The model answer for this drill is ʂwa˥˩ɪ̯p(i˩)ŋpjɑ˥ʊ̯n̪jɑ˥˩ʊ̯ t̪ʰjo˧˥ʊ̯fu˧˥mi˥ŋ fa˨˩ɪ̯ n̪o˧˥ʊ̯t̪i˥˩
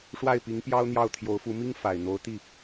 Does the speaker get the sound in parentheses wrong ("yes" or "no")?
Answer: yes